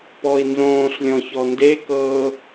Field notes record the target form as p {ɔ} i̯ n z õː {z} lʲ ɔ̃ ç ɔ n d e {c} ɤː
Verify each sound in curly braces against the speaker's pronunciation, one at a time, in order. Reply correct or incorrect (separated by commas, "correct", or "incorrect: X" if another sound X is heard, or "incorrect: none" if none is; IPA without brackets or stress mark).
correct, incorrect: ɬ, incorrect: k